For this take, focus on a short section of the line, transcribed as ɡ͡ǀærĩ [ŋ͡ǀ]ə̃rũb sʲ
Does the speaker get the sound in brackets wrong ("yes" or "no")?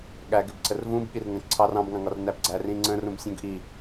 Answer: no